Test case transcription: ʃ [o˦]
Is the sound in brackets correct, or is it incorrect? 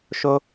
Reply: correct